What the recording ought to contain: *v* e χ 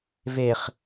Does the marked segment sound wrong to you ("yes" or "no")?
no